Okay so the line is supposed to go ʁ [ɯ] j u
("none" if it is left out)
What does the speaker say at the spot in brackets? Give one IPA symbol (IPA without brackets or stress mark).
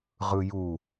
ɯ